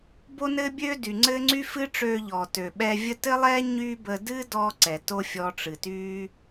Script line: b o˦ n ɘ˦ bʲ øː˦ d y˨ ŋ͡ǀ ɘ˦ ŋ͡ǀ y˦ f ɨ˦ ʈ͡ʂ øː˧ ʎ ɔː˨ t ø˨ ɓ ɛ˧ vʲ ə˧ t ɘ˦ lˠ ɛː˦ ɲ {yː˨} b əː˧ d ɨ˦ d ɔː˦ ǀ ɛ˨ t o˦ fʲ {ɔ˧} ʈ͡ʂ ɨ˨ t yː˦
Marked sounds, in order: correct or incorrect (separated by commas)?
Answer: incorrect, correct